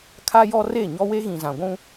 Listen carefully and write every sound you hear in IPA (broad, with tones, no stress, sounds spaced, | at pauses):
kʰ a˦ j ɔ˦ r e˦˨ ɲ ɔ˦ w e˦ ɣ ĩ˨ z ã˨ ɡʷ ũ˦